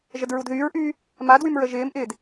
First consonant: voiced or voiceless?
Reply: voiced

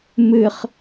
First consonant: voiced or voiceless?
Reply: voiced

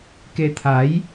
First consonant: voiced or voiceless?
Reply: voiceless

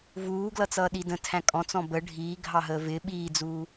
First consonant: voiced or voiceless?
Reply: voiced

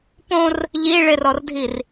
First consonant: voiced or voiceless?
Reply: voiceless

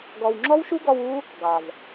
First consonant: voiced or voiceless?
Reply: voiced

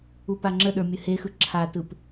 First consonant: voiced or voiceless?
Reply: voiceless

